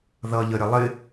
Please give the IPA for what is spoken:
ð ʌ ʎ ə ɾʲ ə lˠ ɪ

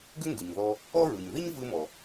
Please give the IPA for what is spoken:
ɡ ʏ˥ ŋ ɡ ɯ˩ ɲ ð ɔ˧ | ɔ˥ ɹ ɯ˩ ɲ ð i˥ ɲ v ɯ˧ m ɔ˩

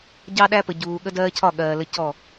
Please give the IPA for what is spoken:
ɟ ɑ˦ ɗ æ˦ p ə˨ ɟ uː˨ ɠ ə˦ d ɜː˦ cʰ ɒ˦˨ ɠ ɜː˨ l ə˦ c ɔ˦˨

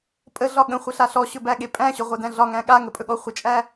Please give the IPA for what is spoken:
pʼ ə ɮ ɒ ɠ ə̃ χʷ ə ɬ a ɬ ɔ ɕ ɵ b æ ɠ e pʼ æ̃ ɕ ɵ ʁʷ æ d æ̃ ɮ ɒ ŋ æ̃ ɠ a ŋ ə pʼ ɵ ɠ ɔ χʷ ə t͡ʃʼ æ

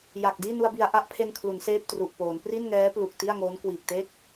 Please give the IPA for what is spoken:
j a˨˩ k̚ d iː˥˩ n u˧ a̯ b i˨˩ a̯ ʔ a˥˩ ʔ pʰ e˧ n kʰ l u˩˦ n s eː˥˩ p̚ t r u˨˩ ʔ p oː˩˦ n p r i˥˩ n ŋ ɛː˦˥ p l u˨˩ k̚ t i˥˩ a̯ ŋ oː˦˥ n k w iː˨˩ k̚ t e˥˩ k̚

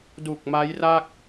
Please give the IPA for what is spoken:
d u˨˩ k̚ m a˦˥ j r a˥˩ k̚

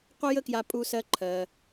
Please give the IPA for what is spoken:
qʷ ə˥ j ə˥ k j a˧ pʼ u˧ s ɜ˧ ǃʰ ɜ˩

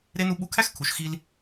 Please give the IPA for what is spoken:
ɾ e˦ n u˦ ɓ u˦ kʰ æ˦ x kʰ u˨ ʃ x i˦ l

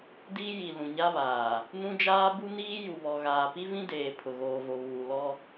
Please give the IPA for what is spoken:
d iː˦ j i˨ l ũ˨ ɲ a˦ β aː˨ | n ũ˦ d͡ʒ aː˦ b u˦ n iː˦ j u˨ β ɔ˨ ɣ aː˨ p i˦ v ĩ˦ d eː˨ pʰ ʊ˨ ɣ oː˨ v o˨ β uː˨ l ɔ˦

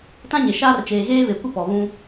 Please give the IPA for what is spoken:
t ã˦ ɲ e˨ ʃ aː˦ r t͡ʃ eː˨ ɣ eː˦ β e˨ kʷ ɪ˦ p ɔ˨ β ũ˦

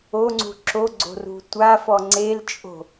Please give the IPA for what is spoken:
o ŋ͡ǀ ṳ ǁ o ɡ͡ǀ o̤ r ṳ tʷ a f ɔ ŋ͡ǀ e l t͡ʃʼ o̤

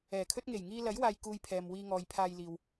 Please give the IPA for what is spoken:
ɛː˨˩ kʰ ɵ˥ t̚ ŋ e˨˩ j ŋ iː˧ l ɐ˨˥ j w aː˧ j k uː˧ j pʰ ɛː˨ m w iː˧ ŋ ɔː˨ j pʰ aː˧ j l iː˨ w

